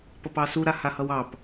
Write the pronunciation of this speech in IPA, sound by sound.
p ʌ p ɑ s u ɾ a h a h ʌ w ɑ p

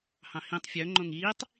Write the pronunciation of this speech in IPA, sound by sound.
h ɑ̃ h ĩ tˤ fʲ œ ŋ͡ǃ õ ŋ iː tˤ

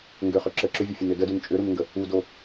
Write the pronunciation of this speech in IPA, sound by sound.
ŋ ɡ ʏ χ ʏ ǁ ə ǁ ʏ vʲ ə fʲ ə n ʏ d ə d u n t͡ʃʼ ʏ ɾ u n ŋ ɡ ə | u d o

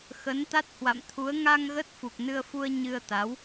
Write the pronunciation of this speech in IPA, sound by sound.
x ə˨˦ n t̪ a˦˥ t̚ h w a̰˧˨ m t̪ʰ u˨˦ ə̯ ŋ a˧ ŋ ɣ ə˦˥ t̚ f u˨˩ k̚ n ɨ˧ ə̯ f u˧ ə̯ ɲ ɨ˧ ə̯ t̪ a˨˦ w

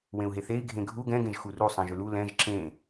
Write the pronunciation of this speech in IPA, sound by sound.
w ẽ u̯ ɦ e θ e i̯ ɡʱ ẽ ɡʱ u ɡ ɛ̃ ɡ ẽ ʒ x u r u sˤ ɛ̃ ʒ ʏ l u l ɛ̃ ʒ ǁ ẽ

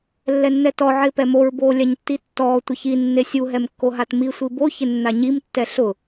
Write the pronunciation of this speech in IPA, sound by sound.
lː ɛ nː ɛ t ɔ ʕ ɪː p ɛ m o ɹ b oː lʲ a ɲ tː i tː ɔː tʷ ɪ ç i nː e sʲ u ɦ ɛ m kː o ɦ a t m i sʷ i b o ç ɪ nː a ɲ i m tː ɛ ɬ ʊ

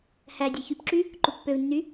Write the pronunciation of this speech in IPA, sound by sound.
h æ dʲ e ç y p ǁ y | ǃ u pː ø v nː y

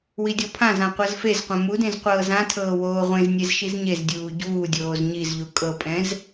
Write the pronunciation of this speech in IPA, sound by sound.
w i dʲ ɔ pʰ ã z ã qʷ ɤ z f e z qʷ ɛ̃ m u d ẽ z qʷ ɤː z ã tʰ ɤː w oː ʁʷ ẽ z nʲ e z ʃ i z ɲ e z dʲ uː ɟ uː dʲ oː z ɲ i z ʎ u kʼ ɤ pʼ ɛ̃ z

